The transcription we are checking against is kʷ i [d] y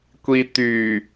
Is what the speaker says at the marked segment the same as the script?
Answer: no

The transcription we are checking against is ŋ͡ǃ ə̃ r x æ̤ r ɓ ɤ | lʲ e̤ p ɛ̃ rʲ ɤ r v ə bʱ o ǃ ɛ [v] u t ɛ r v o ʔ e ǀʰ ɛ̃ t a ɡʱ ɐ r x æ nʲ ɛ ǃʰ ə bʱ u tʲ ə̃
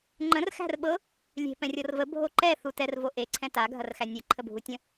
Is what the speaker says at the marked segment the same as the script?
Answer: no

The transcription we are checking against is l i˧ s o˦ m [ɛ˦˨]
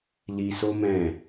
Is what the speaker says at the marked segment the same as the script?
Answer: no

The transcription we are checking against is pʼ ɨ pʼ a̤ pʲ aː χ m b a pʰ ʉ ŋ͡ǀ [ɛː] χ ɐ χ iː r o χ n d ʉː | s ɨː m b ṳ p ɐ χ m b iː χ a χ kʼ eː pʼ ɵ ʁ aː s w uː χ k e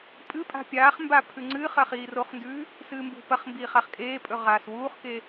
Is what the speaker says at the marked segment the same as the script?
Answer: no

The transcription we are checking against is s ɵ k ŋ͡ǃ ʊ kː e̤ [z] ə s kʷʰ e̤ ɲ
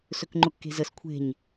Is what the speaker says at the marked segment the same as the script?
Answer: yes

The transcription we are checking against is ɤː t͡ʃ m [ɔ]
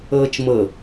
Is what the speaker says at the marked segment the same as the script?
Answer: no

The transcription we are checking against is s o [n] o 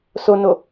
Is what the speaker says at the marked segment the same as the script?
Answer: yes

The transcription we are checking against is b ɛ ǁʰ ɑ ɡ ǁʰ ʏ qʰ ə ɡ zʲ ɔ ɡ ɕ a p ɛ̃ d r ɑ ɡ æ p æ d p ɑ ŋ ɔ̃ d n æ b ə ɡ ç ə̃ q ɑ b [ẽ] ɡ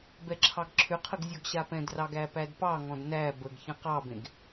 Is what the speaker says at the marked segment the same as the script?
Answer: yes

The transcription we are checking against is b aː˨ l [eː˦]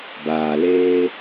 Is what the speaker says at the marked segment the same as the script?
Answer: yes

